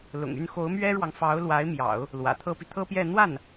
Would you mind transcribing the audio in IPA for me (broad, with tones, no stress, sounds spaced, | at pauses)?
l ʊ̰˨˩ ŋ y˥˩ n x o˧˥ ʊ̯ m ɥ ɛ˥ ɻ w ɑ˨ ŋ f ɑ˧˥ ʊ̯ l w a˧˥ ɪ̯ m j ɑ̰˨˩˦ ʊ̯ | l w ä̰˨˩ t̪ʰ ɤ˥ p i˨ t̪ʰ ɤ˥ p j ɛ˥˧ n̪ w a˥˩ n